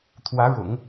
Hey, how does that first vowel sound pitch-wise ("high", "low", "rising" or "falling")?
rising